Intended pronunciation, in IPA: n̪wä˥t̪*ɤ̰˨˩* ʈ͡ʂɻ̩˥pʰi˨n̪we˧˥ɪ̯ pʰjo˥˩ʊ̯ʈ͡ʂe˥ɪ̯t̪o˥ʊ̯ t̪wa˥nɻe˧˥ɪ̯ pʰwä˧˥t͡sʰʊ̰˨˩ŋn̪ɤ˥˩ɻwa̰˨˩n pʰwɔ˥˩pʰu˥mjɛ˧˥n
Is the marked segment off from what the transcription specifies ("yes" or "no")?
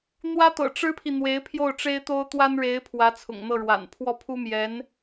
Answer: no